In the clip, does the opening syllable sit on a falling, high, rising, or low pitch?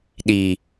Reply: low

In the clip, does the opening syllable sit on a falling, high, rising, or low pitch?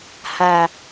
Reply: low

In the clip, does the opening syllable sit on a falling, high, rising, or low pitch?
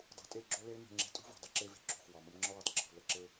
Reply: low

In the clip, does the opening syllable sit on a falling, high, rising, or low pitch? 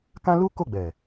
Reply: high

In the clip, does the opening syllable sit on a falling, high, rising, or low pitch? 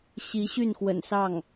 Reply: rising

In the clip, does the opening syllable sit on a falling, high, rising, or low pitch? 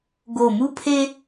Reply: low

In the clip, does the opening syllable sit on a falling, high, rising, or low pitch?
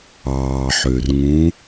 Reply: low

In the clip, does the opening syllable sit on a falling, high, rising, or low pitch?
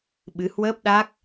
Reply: rising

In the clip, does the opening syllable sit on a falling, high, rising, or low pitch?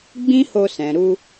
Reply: high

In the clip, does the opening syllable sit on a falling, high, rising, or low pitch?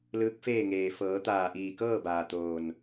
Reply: rising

